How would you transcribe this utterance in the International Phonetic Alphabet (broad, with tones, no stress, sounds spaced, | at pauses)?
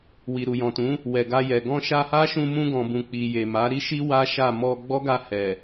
w i˨ ɾ u˨ j ɔ̃˨ t ũ˨˦ | w ɛ˨ ɡ a˧ j ɛ˨ ɡ ɔ̃˧ ʃ a˧ h a˦ ʃ ũ˧ m ũ˧ ɡ ɔ̃˨ b ũ˨ k͡p i˨ j e˨ m a˨˦ ɾ i˦ ʃ i˦ w a˦ ʃ a˦˨ m ɔ˧ ɡ͡b ɔ˦ ɡ a˧ h ɛ˨